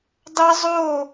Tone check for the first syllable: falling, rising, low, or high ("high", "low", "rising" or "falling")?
high